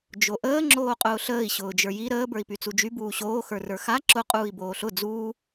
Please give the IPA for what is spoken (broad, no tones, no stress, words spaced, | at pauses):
d͡ʒoʔəː ŋ͡ǁoːqʼʊːɬəːi̯ ɕʊːd͡ʒə˞ji ɾəː bə˞i̯pyt͡sud͡ʒy buːɕoː xə˞rə˞xa ǁʊ qʼuːi̯boːɬʊ d͡zuː